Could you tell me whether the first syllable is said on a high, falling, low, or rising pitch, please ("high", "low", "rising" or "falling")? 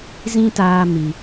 high